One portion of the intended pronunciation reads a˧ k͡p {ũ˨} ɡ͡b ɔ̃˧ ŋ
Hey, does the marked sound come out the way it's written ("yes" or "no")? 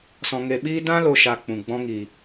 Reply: yes